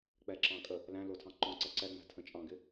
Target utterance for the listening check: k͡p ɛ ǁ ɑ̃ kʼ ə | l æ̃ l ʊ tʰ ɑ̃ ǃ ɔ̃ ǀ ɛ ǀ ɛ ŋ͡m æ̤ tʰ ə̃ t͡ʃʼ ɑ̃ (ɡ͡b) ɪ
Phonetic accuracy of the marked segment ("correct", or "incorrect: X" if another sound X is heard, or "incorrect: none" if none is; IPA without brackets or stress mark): incorrect: ɡ